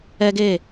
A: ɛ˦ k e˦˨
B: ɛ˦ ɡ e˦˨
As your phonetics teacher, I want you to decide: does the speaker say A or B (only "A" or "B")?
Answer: B